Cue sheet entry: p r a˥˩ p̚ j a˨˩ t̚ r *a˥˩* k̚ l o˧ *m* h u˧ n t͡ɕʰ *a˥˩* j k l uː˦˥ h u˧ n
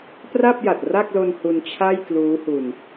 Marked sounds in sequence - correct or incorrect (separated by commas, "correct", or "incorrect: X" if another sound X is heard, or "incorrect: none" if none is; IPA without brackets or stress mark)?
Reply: correct, incorrect: n, correct